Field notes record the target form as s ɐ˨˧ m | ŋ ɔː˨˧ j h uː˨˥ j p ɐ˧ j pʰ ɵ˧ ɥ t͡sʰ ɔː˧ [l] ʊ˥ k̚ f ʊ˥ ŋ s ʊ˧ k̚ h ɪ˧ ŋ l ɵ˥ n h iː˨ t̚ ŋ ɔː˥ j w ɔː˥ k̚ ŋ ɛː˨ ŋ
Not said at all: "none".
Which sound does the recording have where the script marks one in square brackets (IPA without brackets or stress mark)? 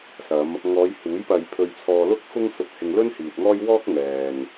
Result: l